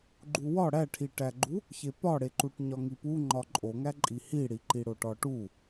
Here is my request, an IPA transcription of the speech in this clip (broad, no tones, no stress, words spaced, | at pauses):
ɡ͡ǃuwɒ ɽæʈʰiʈæɡ͡ǃu | çepɒɽeǃuʈ ɲɒŋipu ŋ͡ǃɒǃʼoŋæ ǃʼihiɽi ǃiɽoʈɒʈu